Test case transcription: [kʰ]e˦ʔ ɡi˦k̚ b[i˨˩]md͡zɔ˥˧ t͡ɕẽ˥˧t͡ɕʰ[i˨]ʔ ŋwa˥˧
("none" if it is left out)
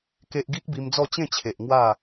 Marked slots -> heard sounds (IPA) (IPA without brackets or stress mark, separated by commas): k, i˧, e˨